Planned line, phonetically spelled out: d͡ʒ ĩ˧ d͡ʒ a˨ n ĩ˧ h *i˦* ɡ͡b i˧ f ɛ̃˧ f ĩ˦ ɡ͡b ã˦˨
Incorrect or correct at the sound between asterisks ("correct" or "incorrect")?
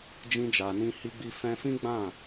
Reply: incorrect